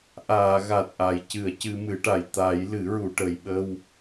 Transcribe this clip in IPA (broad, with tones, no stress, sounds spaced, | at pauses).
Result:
ʔ aː˨˩˨ ɣ a˨˩ t̚ ʔ a˨˩˨ j c ɨ˨˩˨ ə̯ c ɨ˧ m ɨ˨˩˦ ʈ a˨˩ j t̪ a˨˩˦ j l ɨ˨˩˦ ɹ u˨˩˨ ʈ ə˨˩ j ɓ ə˧ w